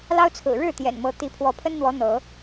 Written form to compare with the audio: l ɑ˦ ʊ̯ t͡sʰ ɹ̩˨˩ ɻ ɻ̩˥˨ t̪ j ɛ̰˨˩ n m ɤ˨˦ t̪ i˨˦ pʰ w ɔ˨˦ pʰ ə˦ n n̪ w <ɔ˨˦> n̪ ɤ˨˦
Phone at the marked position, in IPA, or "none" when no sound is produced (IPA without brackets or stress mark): ɔ˨˦